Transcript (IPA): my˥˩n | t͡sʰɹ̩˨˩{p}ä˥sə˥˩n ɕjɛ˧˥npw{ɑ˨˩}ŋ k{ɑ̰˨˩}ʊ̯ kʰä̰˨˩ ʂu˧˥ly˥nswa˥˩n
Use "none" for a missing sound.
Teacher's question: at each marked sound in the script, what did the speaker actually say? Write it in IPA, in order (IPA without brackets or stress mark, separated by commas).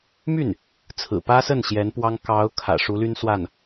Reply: p, ɑ˥, ɑ˧˥